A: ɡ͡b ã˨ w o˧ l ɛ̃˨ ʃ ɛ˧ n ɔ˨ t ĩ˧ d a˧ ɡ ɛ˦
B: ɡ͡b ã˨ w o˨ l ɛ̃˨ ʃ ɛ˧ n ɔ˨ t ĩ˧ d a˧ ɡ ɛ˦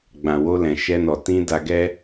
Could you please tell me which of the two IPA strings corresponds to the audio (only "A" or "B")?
A